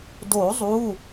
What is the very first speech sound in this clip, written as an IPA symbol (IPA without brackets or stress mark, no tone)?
d